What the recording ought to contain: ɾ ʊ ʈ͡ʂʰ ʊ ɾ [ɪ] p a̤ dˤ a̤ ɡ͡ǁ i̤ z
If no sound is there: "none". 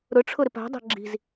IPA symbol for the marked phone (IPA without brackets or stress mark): ɪ